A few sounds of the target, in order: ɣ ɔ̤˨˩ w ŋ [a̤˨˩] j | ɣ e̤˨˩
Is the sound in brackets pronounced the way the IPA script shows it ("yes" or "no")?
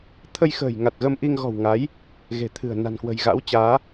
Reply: no